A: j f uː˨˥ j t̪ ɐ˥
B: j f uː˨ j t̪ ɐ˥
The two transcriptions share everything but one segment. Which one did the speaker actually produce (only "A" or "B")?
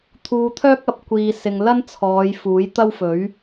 A